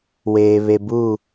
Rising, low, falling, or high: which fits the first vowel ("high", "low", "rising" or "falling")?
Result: low